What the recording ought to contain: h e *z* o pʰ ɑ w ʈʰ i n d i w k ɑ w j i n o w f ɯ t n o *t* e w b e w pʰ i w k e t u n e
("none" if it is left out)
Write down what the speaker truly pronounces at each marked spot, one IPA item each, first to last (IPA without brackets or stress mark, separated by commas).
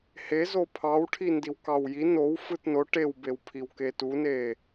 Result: z, ʈ